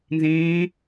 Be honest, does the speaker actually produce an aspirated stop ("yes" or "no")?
no